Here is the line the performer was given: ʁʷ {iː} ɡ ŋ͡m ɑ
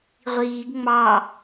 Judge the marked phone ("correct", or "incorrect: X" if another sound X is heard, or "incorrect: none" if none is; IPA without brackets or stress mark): correct